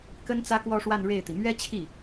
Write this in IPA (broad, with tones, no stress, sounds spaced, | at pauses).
k ə˥ n t͡s ä˥ k w ɔ˥˧ ʂ w a˥˧ n ɻ e˥˩ ɪ̯ t̪ i˩ m ɥ ɛ˥ t͡ɕʰ i˥˩